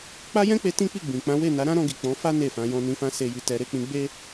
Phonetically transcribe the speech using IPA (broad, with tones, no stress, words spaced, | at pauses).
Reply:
k͡pa˦jɛ̃˦k͡pe˧ tĩ˦k͡pi˦˨ɡ͡bĩ˨k͡pã˨˦ we˦˨na˨˦ɾã˦ɾɔ̃˧ ɡi˨k͡pɔ̃˨˦fa˦ ne˦˨fã˧ jɔ̃˧nĩ˧fã˦ se˧ji˧tɛ˧ ɾe˧k͡pĩ˧ɡ͡be˦